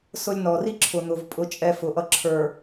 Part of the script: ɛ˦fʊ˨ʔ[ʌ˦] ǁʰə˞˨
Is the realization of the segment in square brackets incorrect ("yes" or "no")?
no